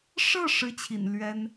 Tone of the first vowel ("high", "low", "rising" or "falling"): falling